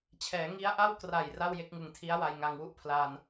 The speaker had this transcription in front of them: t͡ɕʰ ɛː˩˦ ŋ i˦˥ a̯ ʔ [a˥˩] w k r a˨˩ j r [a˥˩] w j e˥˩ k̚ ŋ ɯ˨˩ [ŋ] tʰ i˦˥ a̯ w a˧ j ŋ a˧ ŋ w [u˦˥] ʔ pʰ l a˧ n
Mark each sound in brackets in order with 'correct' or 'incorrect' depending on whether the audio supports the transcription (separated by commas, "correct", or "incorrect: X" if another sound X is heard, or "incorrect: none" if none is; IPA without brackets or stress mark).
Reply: correct, correct, correct, correct